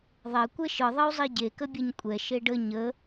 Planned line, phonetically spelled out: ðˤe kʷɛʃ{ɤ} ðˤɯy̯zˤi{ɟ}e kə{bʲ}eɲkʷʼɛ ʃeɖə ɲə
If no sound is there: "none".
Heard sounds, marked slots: ɯ, ɟ, bʲ

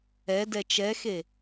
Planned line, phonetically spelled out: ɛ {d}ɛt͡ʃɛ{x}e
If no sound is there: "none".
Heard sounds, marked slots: d, x

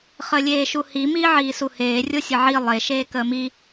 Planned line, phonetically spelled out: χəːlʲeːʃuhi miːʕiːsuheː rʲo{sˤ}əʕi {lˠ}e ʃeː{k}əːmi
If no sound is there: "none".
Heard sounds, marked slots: sʲ, lˠ, k

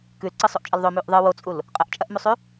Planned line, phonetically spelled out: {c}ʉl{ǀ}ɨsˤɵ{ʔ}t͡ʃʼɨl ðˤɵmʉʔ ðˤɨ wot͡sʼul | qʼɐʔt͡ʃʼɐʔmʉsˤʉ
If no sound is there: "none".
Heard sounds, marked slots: k, ǀ, ʔ

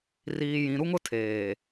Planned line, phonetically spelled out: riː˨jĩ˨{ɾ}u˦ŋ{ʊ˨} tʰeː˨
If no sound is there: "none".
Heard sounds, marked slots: ɾ, ʊ˦

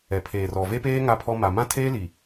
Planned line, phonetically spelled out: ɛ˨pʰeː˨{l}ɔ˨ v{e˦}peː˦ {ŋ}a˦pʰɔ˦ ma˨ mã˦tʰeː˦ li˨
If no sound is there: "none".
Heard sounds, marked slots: r, e˦, ŋ

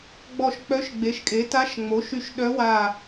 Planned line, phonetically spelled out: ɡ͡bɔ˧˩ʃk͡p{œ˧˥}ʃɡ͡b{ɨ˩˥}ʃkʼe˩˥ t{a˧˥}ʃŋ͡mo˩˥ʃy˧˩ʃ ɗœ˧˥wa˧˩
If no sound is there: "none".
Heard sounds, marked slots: œ˧˥, e˩˥, a˧˥

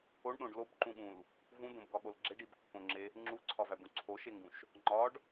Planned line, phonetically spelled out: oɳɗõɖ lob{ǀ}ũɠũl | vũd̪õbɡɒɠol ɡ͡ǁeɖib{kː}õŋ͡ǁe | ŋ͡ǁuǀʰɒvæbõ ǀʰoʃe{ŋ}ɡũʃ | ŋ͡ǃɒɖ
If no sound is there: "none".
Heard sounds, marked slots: ǃ, kː, ŋ

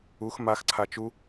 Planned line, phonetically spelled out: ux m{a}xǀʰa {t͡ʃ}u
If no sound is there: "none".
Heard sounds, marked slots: a, t͡ʃ

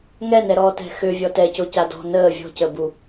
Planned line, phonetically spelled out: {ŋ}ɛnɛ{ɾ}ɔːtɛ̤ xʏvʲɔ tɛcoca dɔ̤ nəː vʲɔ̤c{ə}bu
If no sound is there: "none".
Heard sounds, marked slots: ŋ, ɾ, ə

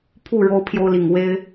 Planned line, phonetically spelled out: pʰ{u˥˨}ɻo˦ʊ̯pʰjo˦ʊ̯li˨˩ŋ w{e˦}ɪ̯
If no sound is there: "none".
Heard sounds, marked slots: u˥˨, e˦

